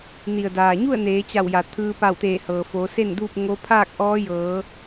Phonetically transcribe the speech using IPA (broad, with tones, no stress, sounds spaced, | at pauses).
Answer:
n i˩ ə̯ d aː˩ ɲ u˥˨ ə̯ n eː˩˧ t͡ɕ a˧˩ w j a˩ t̪ʰ ɯː˧ p a˧˩ w t̪ eː˧˩ h ɤː˩ f oː˩˧ s e˥˨ n d uː˥˨ p̚ ŋ o˧˥ pʰ aː˥˨ k̚ ʔ ɔː˧˥ j ɤː˩˧